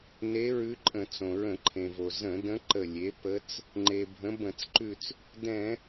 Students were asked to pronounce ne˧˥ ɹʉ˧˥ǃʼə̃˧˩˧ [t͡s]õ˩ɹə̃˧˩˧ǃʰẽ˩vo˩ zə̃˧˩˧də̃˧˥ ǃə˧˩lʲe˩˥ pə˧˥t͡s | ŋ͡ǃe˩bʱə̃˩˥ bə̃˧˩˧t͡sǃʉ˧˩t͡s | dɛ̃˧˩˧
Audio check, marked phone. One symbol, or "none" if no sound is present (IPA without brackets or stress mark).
t͡s